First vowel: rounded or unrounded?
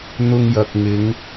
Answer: rounded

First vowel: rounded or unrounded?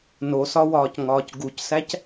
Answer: rounded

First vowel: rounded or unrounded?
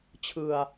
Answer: unrounded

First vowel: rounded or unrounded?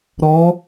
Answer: rounded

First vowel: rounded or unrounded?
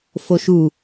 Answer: rounded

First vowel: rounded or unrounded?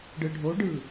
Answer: unrounded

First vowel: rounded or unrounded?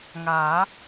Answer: unrounded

